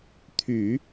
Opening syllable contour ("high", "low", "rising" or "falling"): low